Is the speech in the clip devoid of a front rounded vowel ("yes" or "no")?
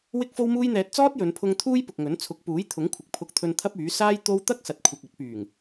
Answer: no